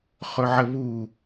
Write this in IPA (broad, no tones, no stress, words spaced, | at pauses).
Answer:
χɵʕəβu